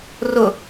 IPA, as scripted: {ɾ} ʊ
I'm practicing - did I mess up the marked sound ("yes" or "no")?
yes